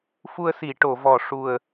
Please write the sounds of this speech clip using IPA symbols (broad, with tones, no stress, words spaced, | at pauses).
fu˧ə̯si˨˩˨ ʈo˨˩˨vɔ˨˩ ʂu˨˩ə̯